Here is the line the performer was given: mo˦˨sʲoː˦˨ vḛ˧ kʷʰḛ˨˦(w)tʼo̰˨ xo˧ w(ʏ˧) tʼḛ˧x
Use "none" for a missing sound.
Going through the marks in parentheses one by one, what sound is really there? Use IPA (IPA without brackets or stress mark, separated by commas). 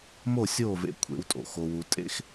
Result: w, u˧